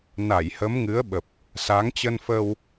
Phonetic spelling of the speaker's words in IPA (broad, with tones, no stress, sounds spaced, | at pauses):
n a˧˩ j h ə˨˦ m ŋ ɨ˨˦ ə̯ ɓ ə˨˩ p̚ | s a˨˦ ŋ t͡ɕ ə˧ n f ə˧ w